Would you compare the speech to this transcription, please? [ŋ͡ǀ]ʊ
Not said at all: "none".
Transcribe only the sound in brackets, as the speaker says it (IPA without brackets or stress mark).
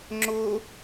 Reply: ŋ͡ǁ